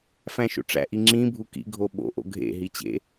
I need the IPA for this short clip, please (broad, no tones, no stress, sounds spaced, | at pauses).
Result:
f æ̃ ʃ o̰ ʈ͡ʂ æ̰ ʔ i ŋ͡ǁ ĩ bʱ u k ḭ ɡʱ o ɓ o̰ ʔ o̰ ɡʱ ḛ ɦ i t͡ɕ ḛ